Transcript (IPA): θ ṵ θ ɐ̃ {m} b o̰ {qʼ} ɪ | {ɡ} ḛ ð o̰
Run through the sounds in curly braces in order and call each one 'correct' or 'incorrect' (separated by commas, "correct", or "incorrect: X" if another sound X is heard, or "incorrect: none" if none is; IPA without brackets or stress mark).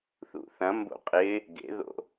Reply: correct, correct, correct